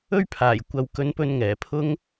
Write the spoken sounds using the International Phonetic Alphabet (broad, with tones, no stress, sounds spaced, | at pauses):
ɵ˥ ɥ pʰ aː˨˩ j kʷ ɐ˨˧ w k ɵ˨˧ n p ɵ˧ n ŋ ɛː˨˩ pʰ ʊ˥ ŋ